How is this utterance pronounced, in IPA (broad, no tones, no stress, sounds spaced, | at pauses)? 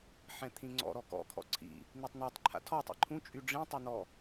ħ ɛ̃ t̪ʰ ĩ ŋ͡ǀ ɔ̰ ɾ ɔ k ɔ̰ kʰ ɔ̰ ǀʰ ḭ | n̪ i tˤ n i tˤ ǃʰ a̰ tʰ ɔ tˤ ḭ ǃʰ ũ t͡ʃʼ y ɖ͡ʐ ĩ tˤ ɛ n̪ ɔ